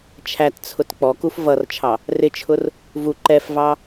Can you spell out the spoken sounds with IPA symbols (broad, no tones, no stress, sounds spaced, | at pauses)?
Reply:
t͡ʃʰ æ t t͡sʰ ʊ t k͡p ɔ k u f v ʌ r t͡ʃʰ ɑ | r ɪ t͡ʃʰ ʊ r | v u ǃ ɛ f v ɑ